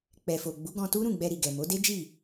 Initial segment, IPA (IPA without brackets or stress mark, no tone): k͡p